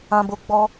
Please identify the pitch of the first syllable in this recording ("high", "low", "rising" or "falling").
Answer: low